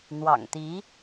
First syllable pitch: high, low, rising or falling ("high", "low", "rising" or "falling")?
low